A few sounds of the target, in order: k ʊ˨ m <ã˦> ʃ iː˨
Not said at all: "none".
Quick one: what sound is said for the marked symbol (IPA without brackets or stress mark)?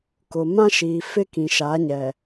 ã˦